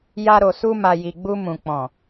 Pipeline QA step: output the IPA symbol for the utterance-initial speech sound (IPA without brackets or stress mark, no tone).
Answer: j